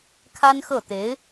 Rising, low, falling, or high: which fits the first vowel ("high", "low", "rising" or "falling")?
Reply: high